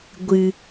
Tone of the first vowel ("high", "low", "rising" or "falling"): low